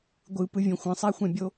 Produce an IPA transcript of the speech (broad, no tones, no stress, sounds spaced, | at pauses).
ɡʷ ɯ p ɯ vʲ õ xʷ ə̃ sˤ a xʷ ɛ̃ bʲ o